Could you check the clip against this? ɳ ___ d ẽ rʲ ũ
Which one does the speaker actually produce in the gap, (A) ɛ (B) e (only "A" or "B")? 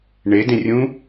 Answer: B